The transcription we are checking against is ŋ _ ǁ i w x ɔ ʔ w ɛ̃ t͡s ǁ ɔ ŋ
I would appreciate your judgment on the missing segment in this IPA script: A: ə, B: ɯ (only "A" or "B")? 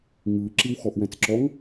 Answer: B